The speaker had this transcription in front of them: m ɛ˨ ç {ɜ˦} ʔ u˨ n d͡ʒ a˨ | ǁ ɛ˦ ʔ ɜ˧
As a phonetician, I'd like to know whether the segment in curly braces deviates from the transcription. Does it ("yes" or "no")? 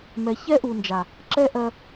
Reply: yes